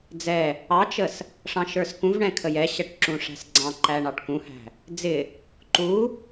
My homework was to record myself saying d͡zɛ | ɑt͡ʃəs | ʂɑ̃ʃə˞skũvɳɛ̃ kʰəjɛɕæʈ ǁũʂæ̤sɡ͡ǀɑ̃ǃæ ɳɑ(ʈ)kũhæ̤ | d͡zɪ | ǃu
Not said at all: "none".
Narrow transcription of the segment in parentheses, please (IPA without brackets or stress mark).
ʈ